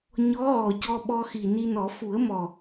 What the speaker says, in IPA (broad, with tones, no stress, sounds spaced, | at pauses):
ɲ ɔ˧˥ ɣ ɔ˨˩ c ɔ˧ ɓ ɔ˧ x i˨˩ n i˧ n ɔ˨˩˦ f u˨˩˦ ə̯ m ɔ˨˩